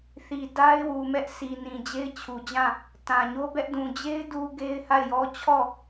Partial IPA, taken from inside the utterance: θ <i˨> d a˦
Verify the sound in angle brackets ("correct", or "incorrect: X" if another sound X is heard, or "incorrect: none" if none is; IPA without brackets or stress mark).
correct